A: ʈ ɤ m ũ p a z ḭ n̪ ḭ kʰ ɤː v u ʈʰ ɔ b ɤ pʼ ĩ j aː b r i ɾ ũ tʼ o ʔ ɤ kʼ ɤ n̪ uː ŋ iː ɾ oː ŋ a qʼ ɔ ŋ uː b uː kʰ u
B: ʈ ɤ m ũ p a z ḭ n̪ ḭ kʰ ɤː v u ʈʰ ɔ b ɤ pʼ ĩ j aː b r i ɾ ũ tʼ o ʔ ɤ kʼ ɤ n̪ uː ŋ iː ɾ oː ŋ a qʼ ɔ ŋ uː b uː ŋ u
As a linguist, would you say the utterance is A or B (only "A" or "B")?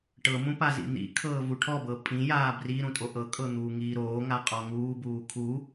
A